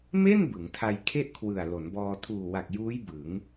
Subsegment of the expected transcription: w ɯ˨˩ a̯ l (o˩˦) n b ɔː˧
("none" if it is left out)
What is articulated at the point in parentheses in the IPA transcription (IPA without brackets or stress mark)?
o˩˦